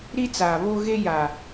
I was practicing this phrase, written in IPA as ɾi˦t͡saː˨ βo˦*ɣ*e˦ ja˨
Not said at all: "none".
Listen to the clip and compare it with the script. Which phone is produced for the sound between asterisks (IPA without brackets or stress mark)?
ɣ